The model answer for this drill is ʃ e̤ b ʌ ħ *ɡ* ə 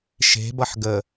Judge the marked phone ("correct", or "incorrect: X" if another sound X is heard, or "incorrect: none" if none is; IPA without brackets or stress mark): correct